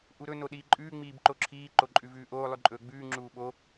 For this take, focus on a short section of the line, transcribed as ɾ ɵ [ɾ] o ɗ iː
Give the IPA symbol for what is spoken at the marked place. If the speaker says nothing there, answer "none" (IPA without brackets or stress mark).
n